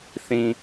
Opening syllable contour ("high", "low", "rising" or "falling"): low